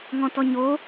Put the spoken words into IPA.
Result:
ŋ ɔ̃ t ɔ ɲ o

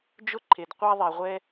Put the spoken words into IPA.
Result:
d͡ʒ ʊ˥ ǃʰ e˩ d qʷ a˥ ðˤ ɛ˩ ʁʷ ɛ˥

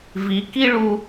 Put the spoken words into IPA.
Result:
v i˩˧ k i˥ ɭ u˧

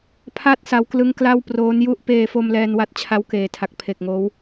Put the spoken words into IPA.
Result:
pʰ a˥˩ t̚ s a˧ w k l ɯ˦˥ ŋ k l a˥˩ w p r oː˦˥ n j u˥˩ ʔ p eː˧ f o˧ m l ɛː˧ n w a˦˥ t̚ t͡ɕʰ a˦˥ w k eː˨˩ tʰ a˨˩ k̚ pʰ e˨˩ k̚ ŋ oː˦˥ w

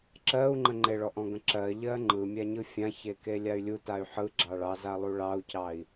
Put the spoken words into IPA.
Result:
ǁ ɜ u̯ ŋ͡ǃ ə ŋ͡ǃ e ɭ ɔ ʔ ɔ̃ ɡ ə̃ ǁ ɜ ʎ ɜ ŋ͡ǃ ɯ mʲ a ɲ ɯ fʲ ã ç e k e lʲ a y̯ lʲ u t a y̯ ħ ɯ ɡ͡ǁ ɑ ɭ ɑ z a lˠ u ɭ ɑ u̯ c ɑ i̯

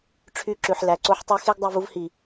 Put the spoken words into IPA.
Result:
ʈ͡ʂʰ y˦˨ ǁ ʉ˨ ħ l æ˨ ǀ o˦ ħ tˤ ʉ˦ x e˦ ɡ dˤ ʉ˨ v u˦ v h i˨

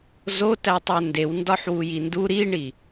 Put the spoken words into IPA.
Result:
z o t æ tˤ æ n d e w n d ɒ ħ w u j i n d u ɾ i ɳ i

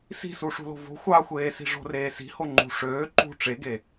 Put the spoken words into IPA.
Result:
s i̤ s u ʂ ṳ l o̤ v o̤ xʷ ɑ xʷ eː s i̤ ʐ o̤ r eː s i̤ h o ŋ͡ǃ ṳ ʂ øː ǃ ṳ ʈ͡ʂ e ɡ e

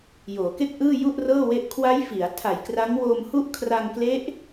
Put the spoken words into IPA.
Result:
j oː˩˦ k e˥˩ k̚ ʔ ɯː˥˩ j u˥˩ ʔ r ɤː˥˩ w e˦˥ ʔ kʰ w a˦˥ j f i˩˦ a̯ tʰ a˨˩ j k r a˦˥ ŋ w oː˧ m h u˥˩ ʔ kʰ r a˧ ŋ k l e˦˥ ʔ

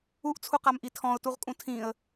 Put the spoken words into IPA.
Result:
u ʔ t͡sʰ u q a m ʔ i tʰ ɔ̃ ʊ̯ t u ʁ kʼ ũ tʰ ĩ ə̯

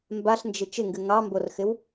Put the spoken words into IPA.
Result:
m b a ɬ n d͡ʒ ɪ t͡ʃ ɪ ŋ ɡ ɨ ŋ ɑ m b o r x ɪ w

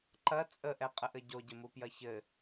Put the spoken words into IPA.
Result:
ǃ ɐ t͡sʼ ə ʔ ɛ qʼ ə ʔ ɘ ɟ o ɟ ɘ m u p j ɐ ç ɘ

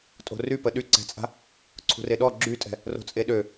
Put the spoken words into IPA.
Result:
tʼ o̤ r y p ə ɗ y ǀ ɛ̤ t͡sʼ a̤ | ǀʰ ṳ r e ɗ ɔ ɡ͡ǁ y tʼ ɛ̤ | r o̤ t͡sʼ e ɗ ø

